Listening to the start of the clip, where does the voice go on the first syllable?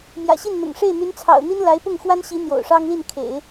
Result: low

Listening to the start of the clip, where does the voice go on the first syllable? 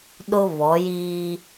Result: high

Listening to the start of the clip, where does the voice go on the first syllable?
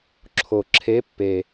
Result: low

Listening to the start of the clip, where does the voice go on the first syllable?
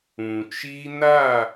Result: low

